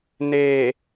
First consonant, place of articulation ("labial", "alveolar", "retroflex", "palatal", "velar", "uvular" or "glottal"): alveolar